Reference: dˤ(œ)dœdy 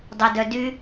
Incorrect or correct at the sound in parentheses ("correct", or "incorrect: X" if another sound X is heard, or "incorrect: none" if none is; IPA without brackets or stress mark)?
incorrect: ø